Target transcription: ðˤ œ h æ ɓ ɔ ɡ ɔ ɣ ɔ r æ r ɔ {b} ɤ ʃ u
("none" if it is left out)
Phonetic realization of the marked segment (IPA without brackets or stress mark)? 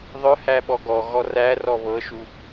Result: β